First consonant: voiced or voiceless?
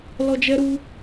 voiced